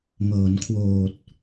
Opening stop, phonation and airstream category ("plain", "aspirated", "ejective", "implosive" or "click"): aspirated